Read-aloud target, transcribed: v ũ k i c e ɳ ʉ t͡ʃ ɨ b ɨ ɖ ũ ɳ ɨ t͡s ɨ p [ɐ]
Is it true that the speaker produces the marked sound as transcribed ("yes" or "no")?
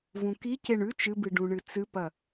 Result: yes